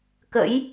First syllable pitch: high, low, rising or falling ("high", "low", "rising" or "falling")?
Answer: rising